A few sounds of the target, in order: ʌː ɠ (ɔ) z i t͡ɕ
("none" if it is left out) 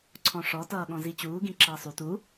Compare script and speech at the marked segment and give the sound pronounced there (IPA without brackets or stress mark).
ɔ̃